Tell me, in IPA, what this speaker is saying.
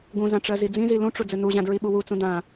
ɡũzã ʈ͡ʂɜzid͡zĩzi lũʈ͡ʂu d͡zɘnuʑã dɹiɓuwut͡sũ dã

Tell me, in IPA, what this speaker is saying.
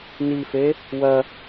nife | wɐ

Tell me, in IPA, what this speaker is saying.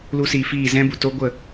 lu˧siː˨fiː˦˨zɛ̃˦ bu˨ to˦ ɡʷə˦˨

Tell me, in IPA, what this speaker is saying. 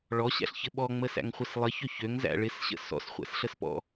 ɭɔɕæ̰ɬçɘ ɓɔŋ͡məsæ̰ŋχʷɘs lˠəçø çøŋzæ̰ ɭɪsɕə̰ sɔ̰sχʷæ̰sɬəspɔ̰

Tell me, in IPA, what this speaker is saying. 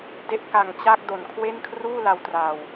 de˦˥ʔka˨˩ŋt͡ɕa˥˩k̚ do˨˩nkʰwe˥˩n kʰruː˥˩la˧wtra˨˩w

